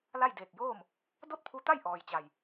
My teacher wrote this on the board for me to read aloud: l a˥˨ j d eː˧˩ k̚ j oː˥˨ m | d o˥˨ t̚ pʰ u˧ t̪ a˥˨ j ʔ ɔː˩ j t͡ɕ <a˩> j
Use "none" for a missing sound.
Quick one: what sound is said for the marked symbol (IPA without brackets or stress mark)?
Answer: a˩